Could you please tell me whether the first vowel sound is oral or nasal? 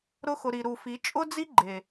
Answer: oral